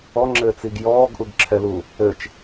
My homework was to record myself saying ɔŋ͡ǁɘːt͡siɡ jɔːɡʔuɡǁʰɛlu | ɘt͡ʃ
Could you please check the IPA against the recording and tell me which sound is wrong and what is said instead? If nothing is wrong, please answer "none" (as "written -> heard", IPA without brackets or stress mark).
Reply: none